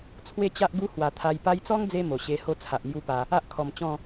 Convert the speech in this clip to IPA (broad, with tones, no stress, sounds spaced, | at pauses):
t͡sʰ w e˥˧ t͡ɕ a˦ ʔ ɡ u˦ h w a˨˩ t̪ʰ a˧ j p a˧ j t͡s ɔ˦ ŋ d͡z e˧ m o˨˩ ɕ e˧ h o˥˧ t͡sʰ a˨ ʔ m j u˦ p a˧ | a˦ ʔ kʰ ɔ˨˩ m t͡ɕ ɔ̃˥˧